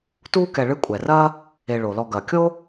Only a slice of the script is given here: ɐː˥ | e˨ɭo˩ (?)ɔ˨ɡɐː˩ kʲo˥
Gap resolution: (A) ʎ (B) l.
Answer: B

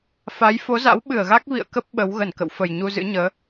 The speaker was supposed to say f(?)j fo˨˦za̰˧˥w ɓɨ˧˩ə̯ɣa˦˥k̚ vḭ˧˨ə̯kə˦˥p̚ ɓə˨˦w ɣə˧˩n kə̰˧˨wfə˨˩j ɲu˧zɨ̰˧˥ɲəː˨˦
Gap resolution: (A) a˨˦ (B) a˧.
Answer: A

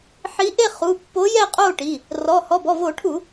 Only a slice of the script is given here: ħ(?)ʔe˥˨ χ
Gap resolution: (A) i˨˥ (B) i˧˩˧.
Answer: A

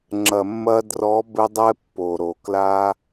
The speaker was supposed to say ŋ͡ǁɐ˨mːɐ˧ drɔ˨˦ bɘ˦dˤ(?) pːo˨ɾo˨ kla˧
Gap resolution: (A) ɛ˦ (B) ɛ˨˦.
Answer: A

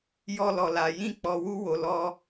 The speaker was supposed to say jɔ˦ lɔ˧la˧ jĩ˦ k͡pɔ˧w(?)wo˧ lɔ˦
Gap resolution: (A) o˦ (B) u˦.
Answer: B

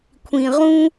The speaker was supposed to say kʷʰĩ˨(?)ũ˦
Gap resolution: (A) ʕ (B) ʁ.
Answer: B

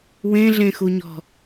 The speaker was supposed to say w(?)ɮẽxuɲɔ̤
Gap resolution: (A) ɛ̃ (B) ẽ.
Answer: B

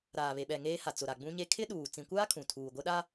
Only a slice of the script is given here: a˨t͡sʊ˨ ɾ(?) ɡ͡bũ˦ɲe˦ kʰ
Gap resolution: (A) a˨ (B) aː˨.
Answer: A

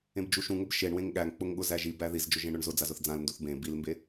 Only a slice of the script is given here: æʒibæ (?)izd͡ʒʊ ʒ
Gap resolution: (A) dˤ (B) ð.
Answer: B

